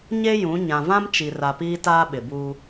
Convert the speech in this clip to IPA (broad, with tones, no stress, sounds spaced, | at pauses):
ɲ e˦ j ũ˨˦ ɲ ã˨ v ã˦ m t͡ʃ i˨ r a˨ p iː˦ t aː˦ ɓ ɪ˨ b uː˦